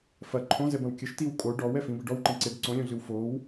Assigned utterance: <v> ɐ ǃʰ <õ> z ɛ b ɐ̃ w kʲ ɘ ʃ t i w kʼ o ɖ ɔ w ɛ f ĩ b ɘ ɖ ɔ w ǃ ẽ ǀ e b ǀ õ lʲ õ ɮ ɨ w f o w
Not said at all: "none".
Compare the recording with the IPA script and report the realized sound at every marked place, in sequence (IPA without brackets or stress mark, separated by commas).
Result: f, õ